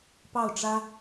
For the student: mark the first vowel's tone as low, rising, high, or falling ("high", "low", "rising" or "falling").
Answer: falling